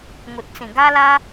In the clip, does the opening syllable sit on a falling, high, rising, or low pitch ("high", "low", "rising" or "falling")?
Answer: low